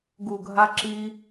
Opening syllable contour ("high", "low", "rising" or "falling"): low